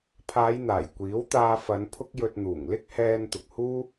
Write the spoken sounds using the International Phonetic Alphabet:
pʰ aː˨˧ j n̪ aː˨˩ j kʷ iː˨˥ w t̪ aː˧ f ɐ˨˧ n pʰ ʊ˥ k̚ j ɵ˧ t̚ n̪ uː˨˩ ŋ l ɪ˥ k̚ h ɛː˧ n t̪ ʊ˨ k̚ h uː˥

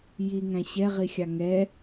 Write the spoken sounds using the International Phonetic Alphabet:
j i ŋ æ̃ ɕ ɛ ʁ i xʲ ɑ ŋ ɛ

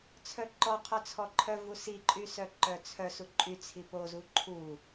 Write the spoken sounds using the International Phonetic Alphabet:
t͡sʰ œ ǃ ɔ qʰ œ t͡sʰ ɔ ǃʰ œ v u s i ǃʼ y s œ ǃ œ t͡sʰ œ s u ǃʼ y t͡sʰ i p o z u ǃʰ u

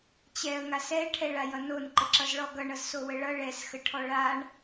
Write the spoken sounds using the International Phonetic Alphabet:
t͡ɕ ɛ ə̯ ŋ a s ɛ ʈʰ ɛ ɭ a j ʌ n o n ǃ ə ǁ ʌ z ɭ ɔ ɡ ʌ ɳ ʌ z s o w ə ɭ ʌ ɭ ɛ s x ə ʈʰ ɔ ɭ a ɳ

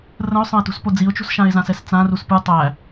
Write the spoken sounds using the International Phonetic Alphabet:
r ə̃ ʊ̯ sˤ ə̃ ɪ̯ t ṳ s p o d͡z i ʊ̯ t͡ʃ ṳ s ʃ ã ɪ̯ z ã s ɛ s t͡s ã r u s p ɯ tˤ æ

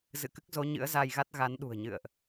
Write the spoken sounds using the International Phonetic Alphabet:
z ɨ̰˧˨ k ɨ˦˥ k̚ z o˨˦ ɲ ɨ̰˧˥ ə̯ z a˧ j ɣ a˦˥ t̚ ɣ a˨˦ n ɗ ṳ˨˩ ə̯ ɲ ɨ̰˧˨ ə̯ ʔ

